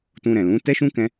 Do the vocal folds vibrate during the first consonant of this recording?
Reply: no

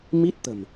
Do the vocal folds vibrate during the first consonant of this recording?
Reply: yes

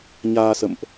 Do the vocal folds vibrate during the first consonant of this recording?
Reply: yes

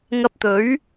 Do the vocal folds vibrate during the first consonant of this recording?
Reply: yes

